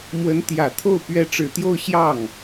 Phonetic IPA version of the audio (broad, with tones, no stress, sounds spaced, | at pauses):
m w ə˧˥ n t̪ j ä˨˩ t̪ʰ o˥˩ ʊ̯ p ɥ ɛ˧˥ ʈ͡ʂ ɻ̩˨˩ t̪ j o˥˧ ʊ̯ ɕ j ɑ˥˩ ŋ